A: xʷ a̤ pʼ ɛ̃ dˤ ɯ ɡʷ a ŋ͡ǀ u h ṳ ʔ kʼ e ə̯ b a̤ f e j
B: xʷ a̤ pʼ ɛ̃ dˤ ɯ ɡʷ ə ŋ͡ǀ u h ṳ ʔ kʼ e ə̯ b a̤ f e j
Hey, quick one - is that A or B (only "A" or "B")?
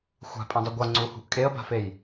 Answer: A